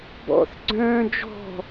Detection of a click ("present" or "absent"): present